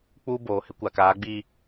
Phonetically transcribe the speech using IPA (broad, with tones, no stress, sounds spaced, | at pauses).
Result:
k͡p uː˦ b oː˨ h ɪ˦ kʷ a˨ k aː˨˦ ɡ͡b i˦